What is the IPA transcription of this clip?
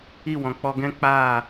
i˦˨ w ɔ̃˨ k͡p ɔ˧ ɡ ɛ̃˦ k͡p aː˦˨

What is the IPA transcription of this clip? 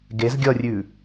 ɡ e z ɡʲ ʌ rʲ ʉ

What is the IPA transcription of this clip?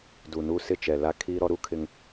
d u˨ n uː˦ s ɪ˦˨ t͡ʃ ɛ˨ l a˦ kʰ iː˦ ɾ ɔ˦ ɾ u˦ kʰ ɪ˦ ŋ

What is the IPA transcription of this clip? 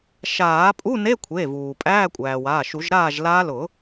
ʃ aː˨˩˦ pʼ u˧˥˧ n e˧˥˧ kʷʰ e˩˧˩ v uː˩ pʼ æː˧˥˧ kʷʼ æː˩ w aː˩˧˩ ʃ u˨˩˦ ʒ ɾ aː˥˨ ʒ l a˦˥ l ʊ˨˩˦

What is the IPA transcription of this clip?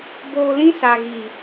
b oː˧ l ĩ˦ s a˨ ɣ iː˨

